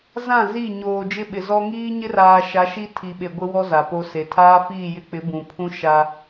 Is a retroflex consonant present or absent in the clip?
absent